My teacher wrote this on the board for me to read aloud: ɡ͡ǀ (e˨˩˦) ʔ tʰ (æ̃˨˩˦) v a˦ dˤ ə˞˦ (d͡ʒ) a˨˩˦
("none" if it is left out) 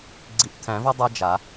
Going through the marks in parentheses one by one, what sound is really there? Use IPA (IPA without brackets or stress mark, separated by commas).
i˨˩˦, æ̃˨˩˦, d͡ʒ